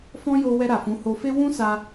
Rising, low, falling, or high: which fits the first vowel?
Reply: high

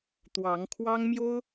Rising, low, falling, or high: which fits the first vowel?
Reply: rising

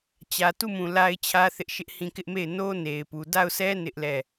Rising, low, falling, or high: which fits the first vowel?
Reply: low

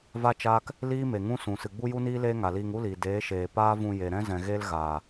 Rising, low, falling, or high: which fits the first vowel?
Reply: high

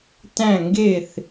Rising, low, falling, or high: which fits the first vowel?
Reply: falling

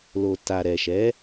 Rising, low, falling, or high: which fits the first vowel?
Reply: low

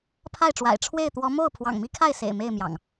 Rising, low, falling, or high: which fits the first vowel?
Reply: falling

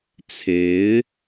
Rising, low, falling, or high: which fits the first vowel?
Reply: rising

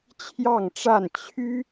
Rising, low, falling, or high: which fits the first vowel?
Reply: falling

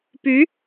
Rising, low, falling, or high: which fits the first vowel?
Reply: rising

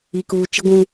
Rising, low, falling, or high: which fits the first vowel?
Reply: low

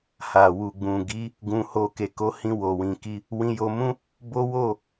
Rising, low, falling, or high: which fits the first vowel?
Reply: low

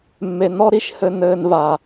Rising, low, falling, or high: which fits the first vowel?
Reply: low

